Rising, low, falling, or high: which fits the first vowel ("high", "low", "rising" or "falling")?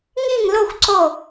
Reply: falling